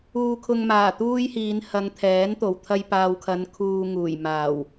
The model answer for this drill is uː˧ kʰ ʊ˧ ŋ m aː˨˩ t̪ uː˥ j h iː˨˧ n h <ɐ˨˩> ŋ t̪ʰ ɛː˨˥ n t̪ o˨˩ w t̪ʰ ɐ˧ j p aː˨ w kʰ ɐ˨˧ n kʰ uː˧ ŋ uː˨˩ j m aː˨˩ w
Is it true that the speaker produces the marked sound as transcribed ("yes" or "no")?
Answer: no